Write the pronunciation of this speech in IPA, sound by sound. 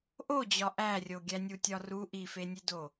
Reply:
ʔ o d͡ʑ ɒ ʔ æ rʲ o ɡʲ æ nʲ u tʲ ɒ r u ʔ i f e nʲ e d o

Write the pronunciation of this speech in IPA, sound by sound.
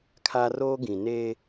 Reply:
kʰ a˦ r oː˦ ɡ ĩ˨ n eː˦

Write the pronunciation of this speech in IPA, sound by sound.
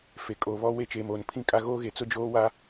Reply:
f e˨ kʼ oː˨ β ɔ˦ w e˦ t͡ʃ eː˨ m oː˨ n pʰ ĩ˦ kʼ a˦ ɣ oː˦ ɣ e˨ t͡s ʊ˦ d͡ʒ oː˦ w a˦

